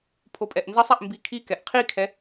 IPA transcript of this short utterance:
pʰ o pʼ ɛ ʔ n z ʌ sˤ ɛ ʔ m b i kʰ i k ɛ ʔ qʰ i kʰ ɛ

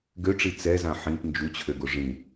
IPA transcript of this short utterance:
ɡ ø ʈ͡ʂ i t͡s ɛ z ã ħ ĩ p n d͡ʒ u t͡ɕʰ ø ɡ o ʐ ĩ

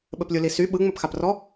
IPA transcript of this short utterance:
ɓ ɘ p lʲ u l i s y ɓ ɯ ŋ͡m ɘ p x a p r ɔ

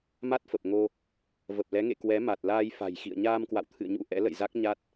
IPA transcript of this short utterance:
m a˦˥ t̚ f ə˨˩ p̚ ŋ o˧ | v ə˨˩ p̚ l ɛ˨˦ ŋ ḛ˧˨ k w ɛ˨˦ m a˨˩ t̚ l aː˧ j f a̤˨˩ j x ḭ˧˨ ə̯ ɲ aː˧ m k w a̰˧˨ w t̪ʰ ɨ̰˧˨ ə̯ ɲ ṵ˧˥ ʔ ɛ̰˧˥ l ə̰˧˨ j z a˦˥ k̚ ɲ a˦˥ t̚

